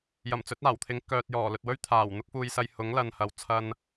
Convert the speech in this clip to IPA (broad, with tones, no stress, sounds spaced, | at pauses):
j ɐ˨˩ m t͡s ɵ˨˥ t̚ aː˨˩ w t̪ʰ ɪ˨˥ ŋ k œː˨ t̚ j ɔː˨˩ l ɵ˨ t̚ w ɵ˥ ɥ t̪ʰ aː˨˩ w n̪ ʊ˥ k̚ f uː˧ j s ɐ˧ j h ʊ˨˥ ŋ l ɐ˨ n h ɐ˨ w t͡sʰ ɐ˧ n